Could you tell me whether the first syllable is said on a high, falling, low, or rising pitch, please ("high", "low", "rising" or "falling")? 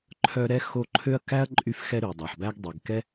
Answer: high